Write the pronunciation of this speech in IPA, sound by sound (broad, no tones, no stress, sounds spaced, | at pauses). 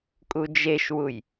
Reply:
kʼ u d͡ʒ e ʃ w u j